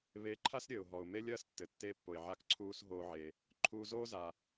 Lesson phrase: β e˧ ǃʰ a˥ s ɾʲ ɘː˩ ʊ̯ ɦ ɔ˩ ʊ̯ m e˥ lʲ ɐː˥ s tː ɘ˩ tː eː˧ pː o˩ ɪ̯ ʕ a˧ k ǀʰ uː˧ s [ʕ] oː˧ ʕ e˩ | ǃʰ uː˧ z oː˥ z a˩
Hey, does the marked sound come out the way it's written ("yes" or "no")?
no